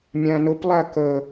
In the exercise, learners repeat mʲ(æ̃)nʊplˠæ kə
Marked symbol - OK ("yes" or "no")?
yes